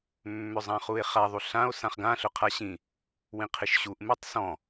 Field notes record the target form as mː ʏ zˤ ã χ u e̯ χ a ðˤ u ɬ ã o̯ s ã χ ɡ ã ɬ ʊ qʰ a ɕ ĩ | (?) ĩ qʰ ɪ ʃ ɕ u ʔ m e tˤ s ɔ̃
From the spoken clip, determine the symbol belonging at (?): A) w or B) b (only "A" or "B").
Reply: A